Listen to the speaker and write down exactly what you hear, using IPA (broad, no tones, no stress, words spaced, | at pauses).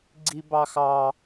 ɡ͡ǀibɑxɑ